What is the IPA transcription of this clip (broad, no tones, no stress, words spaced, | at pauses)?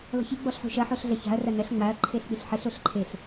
lɔ̤çi ɡ͡bɔɬħṳʃɐ ħoɬɮɐça̤ɐ̯ rɐnɐɬ ŋ͡maɐ̯ ǃʰeɬk͡piɬħɘɬ oɬǃʰeɬ